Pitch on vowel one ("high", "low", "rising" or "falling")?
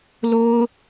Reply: high